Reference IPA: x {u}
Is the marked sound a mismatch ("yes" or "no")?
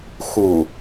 no